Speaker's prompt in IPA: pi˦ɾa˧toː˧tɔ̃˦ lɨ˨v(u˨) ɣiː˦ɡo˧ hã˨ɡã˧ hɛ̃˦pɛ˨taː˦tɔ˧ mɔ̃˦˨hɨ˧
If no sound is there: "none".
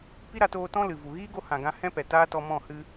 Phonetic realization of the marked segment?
u˨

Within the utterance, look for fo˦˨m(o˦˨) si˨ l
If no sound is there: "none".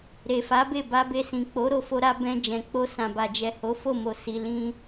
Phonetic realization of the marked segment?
o˨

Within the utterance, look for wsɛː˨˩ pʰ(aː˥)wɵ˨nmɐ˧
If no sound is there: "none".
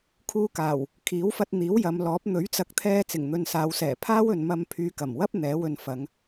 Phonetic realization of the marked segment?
aː˥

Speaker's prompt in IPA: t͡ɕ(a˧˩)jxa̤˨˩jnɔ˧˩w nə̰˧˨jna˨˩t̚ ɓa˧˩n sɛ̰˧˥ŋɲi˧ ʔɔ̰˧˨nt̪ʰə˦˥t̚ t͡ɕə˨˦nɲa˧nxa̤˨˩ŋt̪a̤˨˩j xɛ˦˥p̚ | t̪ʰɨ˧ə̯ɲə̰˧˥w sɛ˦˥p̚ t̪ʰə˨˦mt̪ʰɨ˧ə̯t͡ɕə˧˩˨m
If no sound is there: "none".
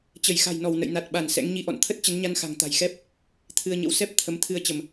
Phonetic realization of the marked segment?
ə˧˩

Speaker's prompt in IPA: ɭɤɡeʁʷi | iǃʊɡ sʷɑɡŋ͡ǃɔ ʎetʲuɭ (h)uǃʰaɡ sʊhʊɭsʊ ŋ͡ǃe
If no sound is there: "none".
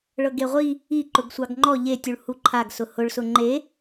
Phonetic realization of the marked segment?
h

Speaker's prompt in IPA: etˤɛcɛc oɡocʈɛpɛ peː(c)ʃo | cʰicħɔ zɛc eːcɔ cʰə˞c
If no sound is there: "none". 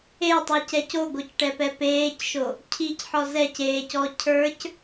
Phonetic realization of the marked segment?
c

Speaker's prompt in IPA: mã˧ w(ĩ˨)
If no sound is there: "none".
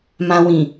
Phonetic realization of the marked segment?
ĩ˨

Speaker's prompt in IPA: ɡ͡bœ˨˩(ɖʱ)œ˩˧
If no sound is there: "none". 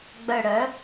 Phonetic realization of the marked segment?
ɽ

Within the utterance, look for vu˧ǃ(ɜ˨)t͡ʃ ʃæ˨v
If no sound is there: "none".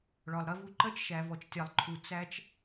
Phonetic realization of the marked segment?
ɜ˦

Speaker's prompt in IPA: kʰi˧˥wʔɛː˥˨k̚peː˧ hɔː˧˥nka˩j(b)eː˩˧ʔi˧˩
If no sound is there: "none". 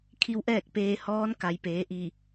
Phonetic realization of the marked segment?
p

